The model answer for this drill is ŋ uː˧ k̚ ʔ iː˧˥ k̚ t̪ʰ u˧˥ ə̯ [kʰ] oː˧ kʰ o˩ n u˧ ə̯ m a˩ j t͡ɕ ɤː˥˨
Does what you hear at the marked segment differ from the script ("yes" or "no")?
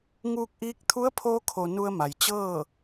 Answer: yes